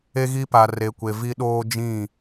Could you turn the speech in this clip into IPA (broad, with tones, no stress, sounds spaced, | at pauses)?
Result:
e˦ ɣ i˦ p a˨ r e˨ kʷ e˨ v i˦ ɗ oː˦ d͡ʒ ĩ˦˨